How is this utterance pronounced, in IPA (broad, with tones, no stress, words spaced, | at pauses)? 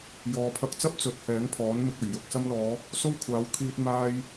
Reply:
jɔː˨pʰɐ˧k̚t͡sɐ˥p̚ t͡sɵ˨˥t̚hɛː˨˥ŋpʰɔː˨˥nmɪ˧k̚ ɵ˨˩ɥjʊ˨k̚ sɐ˧mlɔː˨˧ | so˥wkʷʰaː˨˥w kʰiː˧t̚ maː˥j